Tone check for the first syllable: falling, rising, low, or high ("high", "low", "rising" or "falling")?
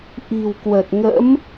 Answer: low